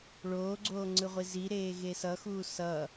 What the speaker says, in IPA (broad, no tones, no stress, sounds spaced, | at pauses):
ɭ oː ɡ͡ǀ oː ŋ͡ǀ ɯ ʁʷ i z i ɾ eː ɣ e s ʌ x uː s ʌ